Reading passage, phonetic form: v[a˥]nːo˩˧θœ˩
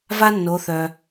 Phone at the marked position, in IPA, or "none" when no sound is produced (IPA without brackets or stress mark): a˥